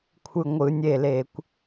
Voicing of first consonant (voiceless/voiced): voiceless